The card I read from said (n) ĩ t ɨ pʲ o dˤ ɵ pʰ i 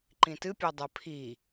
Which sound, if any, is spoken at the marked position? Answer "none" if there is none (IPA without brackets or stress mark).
ǃ